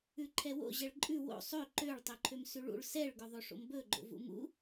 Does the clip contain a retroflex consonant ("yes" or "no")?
yes